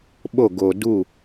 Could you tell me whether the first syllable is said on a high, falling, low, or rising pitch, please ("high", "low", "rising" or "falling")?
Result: falling